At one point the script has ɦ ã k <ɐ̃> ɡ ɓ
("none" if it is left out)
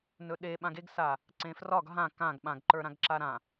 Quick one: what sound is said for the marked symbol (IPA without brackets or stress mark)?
ã